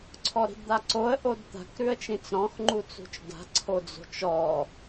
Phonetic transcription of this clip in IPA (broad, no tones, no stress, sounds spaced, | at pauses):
ǀʰ ɔ ɾ i̤ d d̪ a ǀ o ə̯ ʔ o d t̪ a̤ k ɾ ʉ ə̯ t͡ʃ ĩ t͡s ɾ ɔ̃ x ŋ͡ǃ u t͡s ṳ t͡ʃ d a̤ ǀʰ o d͡z o̤ t͡ʃ ɔ